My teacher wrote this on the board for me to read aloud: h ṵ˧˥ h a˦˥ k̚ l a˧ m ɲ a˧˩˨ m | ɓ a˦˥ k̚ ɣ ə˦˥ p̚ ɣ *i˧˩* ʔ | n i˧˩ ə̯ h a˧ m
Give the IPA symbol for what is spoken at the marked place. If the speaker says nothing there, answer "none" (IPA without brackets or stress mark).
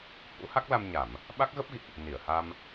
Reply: ḭ˧˨